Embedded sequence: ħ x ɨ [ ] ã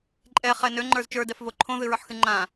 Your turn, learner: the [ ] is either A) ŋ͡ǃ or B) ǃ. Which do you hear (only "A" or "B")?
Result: A